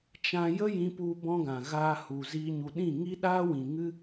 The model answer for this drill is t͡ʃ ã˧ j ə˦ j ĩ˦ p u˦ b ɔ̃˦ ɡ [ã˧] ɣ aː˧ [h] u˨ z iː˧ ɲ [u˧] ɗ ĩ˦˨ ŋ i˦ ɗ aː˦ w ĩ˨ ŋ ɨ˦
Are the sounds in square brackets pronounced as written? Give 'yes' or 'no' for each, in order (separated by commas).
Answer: no, yes, no